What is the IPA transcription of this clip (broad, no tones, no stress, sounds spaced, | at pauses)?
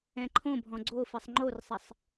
ɛ̃ ǃʰ õ bʱ ɔ̃ ɡ͡ǀ o f i sˤ ŋ͡ǃ o r sˤ ɪ sˤ